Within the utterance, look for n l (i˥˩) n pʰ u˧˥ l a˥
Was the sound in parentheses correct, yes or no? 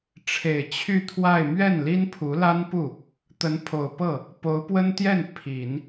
no